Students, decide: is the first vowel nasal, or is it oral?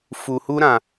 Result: oral